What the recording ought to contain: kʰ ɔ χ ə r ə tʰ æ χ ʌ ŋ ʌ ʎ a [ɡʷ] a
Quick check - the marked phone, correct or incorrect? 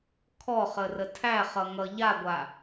correct